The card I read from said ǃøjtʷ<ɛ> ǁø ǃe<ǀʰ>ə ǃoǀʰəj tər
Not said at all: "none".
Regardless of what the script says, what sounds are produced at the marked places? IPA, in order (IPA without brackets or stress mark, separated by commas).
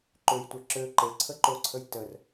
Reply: ɛ, ǀʰ